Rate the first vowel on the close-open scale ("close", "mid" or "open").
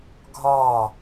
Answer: open